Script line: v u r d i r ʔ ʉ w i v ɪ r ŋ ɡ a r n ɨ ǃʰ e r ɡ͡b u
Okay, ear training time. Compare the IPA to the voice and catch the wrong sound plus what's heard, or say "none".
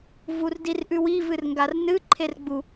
ɪ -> ɨ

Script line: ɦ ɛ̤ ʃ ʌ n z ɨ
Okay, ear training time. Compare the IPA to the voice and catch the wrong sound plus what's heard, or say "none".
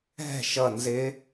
ɨ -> ɪ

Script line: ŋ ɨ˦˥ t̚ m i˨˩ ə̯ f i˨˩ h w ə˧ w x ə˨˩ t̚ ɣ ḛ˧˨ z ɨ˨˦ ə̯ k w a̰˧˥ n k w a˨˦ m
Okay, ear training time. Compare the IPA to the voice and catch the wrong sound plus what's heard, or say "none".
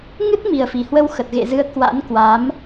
none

